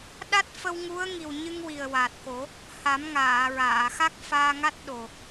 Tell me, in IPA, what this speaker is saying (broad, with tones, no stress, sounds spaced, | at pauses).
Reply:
ɗ a˦˥ t̚ f ə˧ w ŋ u˧˥ ə̯ ŋ i˨˩ w ɲ ɨ˧ ŋ w i˨˩ ə̯ w a˨˩ t̚ k o˨˩˦ | h a˨˩˦ m ŋ aː˨˩˨ ɹ aː˨˩˨ x a˦˥ k̚ f aː˧ ŋ a˦˥ t̚ ɗ o˨˩